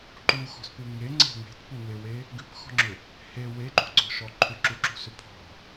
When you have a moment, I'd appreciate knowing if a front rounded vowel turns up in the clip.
yes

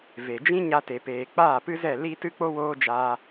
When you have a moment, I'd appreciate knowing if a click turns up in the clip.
no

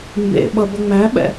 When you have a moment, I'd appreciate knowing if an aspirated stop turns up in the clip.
no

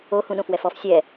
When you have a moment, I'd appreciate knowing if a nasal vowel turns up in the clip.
yes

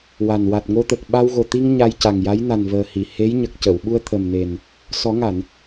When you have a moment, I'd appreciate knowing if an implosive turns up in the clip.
yes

